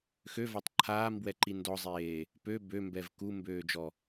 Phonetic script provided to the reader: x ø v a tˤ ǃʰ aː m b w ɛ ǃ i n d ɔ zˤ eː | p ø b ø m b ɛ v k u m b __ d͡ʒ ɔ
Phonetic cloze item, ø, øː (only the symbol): øː